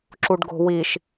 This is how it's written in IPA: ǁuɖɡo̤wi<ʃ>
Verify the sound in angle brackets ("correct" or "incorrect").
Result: correct